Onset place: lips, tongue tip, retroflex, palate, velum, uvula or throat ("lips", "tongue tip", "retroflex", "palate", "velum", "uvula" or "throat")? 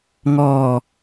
velum